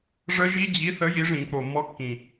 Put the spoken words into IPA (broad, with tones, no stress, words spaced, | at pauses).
ʐə˦˥ʒi˦˥d͡ʑi˨˥ θə˨˥ ji˨˥ʐĩ˧˩˧k͡po˨˩ mːɔ˧kːĩ˨˩